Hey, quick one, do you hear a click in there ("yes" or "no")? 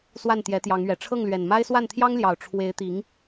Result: no